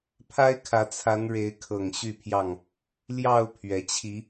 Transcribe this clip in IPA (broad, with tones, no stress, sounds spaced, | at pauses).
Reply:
pʰ a˦ ɪ̯ kʰ ä˨˦ t͡sʰ a˨˦ n ɻ e˨˦ ɪ̯ kʰ ɤ˨˩ ŋ ɕ y˥˨ pʰ j ɑ˥˨ ŋ | l j ɑ˥˨ ʊ̯ pʰ ɥ ɛ˨˦ t͡ɕʰ i˨˦